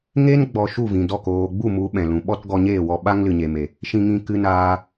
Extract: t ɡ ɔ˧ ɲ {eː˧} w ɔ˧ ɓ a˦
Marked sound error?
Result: yes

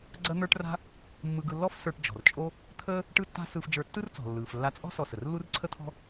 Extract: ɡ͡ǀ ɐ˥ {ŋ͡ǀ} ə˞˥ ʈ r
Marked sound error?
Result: yes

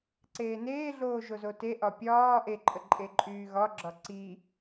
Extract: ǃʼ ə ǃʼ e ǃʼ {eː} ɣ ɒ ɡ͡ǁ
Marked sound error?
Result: yes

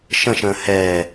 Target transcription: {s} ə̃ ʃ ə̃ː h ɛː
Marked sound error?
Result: yes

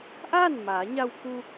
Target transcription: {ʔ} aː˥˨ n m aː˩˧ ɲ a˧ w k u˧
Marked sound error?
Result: no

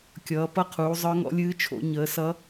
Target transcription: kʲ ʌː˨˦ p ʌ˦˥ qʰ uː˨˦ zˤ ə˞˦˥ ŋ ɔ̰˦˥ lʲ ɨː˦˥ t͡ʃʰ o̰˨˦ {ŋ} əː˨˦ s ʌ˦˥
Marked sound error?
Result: yes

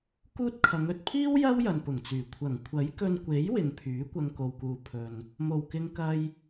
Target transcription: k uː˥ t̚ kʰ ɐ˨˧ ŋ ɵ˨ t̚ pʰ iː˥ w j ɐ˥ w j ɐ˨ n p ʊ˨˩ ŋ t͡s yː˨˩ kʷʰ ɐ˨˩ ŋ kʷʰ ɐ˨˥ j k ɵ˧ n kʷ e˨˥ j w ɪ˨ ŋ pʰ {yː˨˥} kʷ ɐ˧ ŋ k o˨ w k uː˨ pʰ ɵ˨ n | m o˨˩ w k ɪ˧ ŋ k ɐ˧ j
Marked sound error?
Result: no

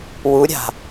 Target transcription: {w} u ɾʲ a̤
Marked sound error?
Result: no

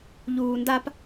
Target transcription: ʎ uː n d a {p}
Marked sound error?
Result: no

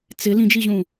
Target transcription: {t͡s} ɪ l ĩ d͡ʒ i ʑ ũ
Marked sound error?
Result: no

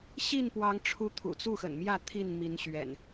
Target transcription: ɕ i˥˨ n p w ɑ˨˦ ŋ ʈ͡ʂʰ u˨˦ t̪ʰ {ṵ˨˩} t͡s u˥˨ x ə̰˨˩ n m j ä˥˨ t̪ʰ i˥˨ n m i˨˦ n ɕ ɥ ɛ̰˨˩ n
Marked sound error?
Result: no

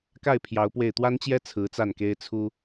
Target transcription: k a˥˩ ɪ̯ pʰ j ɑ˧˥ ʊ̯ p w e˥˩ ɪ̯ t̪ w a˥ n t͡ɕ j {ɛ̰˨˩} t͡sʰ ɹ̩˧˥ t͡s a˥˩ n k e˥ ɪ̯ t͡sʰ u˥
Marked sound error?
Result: yes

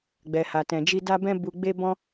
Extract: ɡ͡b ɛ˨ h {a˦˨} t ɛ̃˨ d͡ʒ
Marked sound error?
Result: yes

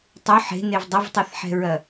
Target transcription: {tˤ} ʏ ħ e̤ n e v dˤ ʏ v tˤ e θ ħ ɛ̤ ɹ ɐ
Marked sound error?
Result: no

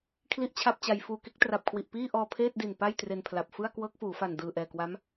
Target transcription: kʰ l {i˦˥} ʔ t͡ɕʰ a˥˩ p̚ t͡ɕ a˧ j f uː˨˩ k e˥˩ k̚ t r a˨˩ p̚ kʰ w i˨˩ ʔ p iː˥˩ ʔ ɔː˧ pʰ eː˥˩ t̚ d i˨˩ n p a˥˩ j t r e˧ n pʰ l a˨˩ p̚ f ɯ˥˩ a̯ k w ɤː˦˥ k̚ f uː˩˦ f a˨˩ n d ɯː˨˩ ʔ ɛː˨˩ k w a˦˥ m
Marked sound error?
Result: yes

